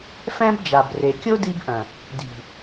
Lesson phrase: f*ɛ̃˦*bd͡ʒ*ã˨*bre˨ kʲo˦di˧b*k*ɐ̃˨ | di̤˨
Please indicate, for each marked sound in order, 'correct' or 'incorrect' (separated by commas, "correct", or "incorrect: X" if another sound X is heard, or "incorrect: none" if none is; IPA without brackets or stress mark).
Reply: correct, incorrect: a˨, incorrect: ʔ